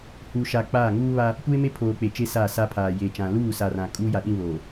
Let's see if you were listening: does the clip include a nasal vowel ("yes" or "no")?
yes